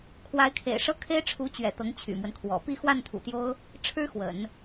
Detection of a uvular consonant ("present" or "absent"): absent